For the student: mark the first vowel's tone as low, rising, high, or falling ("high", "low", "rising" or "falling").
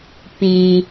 low